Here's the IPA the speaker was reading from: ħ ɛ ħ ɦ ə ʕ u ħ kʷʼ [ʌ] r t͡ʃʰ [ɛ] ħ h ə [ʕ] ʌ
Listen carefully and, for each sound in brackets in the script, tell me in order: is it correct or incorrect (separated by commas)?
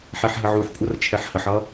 correct, correct, incorrect